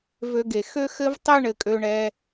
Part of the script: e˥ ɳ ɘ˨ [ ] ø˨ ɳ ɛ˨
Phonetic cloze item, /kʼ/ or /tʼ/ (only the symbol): kʼ